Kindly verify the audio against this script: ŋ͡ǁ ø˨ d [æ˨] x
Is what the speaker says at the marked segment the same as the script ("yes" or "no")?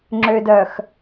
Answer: no